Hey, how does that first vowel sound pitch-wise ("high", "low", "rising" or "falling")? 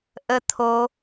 high